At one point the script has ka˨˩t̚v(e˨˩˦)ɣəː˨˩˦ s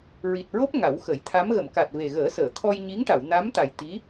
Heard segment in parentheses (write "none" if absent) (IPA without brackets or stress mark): e˨˩